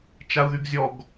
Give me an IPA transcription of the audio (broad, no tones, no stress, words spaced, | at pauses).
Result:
t͡ʃau̯ðyɡzʲɔɡ